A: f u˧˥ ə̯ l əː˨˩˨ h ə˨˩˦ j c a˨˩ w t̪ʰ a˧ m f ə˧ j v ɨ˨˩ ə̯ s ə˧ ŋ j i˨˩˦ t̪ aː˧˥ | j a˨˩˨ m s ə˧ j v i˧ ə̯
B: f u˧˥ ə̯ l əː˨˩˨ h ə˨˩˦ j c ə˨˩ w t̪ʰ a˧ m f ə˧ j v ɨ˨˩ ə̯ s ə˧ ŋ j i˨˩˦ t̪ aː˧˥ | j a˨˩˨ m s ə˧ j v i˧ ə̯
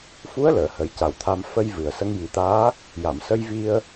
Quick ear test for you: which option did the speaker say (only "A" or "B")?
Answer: A